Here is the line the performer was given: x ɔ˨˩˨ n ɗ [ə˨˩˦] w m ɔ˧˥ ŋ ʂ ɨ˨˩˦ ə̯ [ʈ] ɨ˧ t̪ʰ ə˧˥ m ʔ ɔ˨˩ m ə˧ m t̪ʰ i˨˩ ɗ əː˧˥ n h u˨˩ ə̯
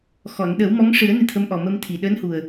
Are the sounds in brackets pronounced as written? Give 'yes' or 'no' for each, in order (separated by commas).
yes, no